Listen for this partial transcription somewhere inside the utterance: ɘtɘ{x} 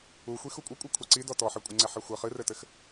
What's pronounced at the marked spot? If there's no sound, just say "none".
x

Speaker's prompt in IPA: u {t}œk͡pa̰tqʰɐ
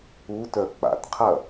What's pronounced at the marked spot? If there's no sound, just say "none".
t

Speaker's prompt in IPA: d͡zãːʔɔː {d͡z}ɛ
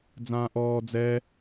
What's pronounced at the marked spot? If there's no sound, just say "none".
d͡z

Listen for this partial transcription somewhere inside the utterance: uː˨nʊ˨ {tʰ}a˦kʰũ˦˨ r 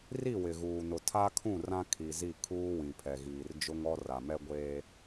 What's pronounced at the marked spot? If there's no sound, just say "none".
tʰ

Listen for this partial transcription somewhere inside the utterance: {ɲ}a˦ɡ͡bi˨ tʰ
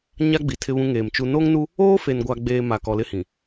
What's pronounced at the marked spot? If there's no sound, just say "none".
ɲ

